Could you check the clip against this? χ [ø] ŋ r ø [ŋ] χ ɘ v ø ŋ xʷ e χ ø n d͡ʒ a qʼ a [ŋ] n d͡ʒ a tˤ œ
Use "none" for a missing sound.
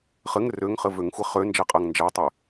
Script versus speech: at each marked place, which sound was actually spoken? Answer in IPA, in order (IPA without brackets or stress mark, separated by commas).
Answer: ɘ, ŋ, ŋ